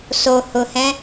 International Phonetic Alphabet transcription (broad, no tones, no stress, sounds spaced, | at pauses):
s o h ʊ h ɛ̃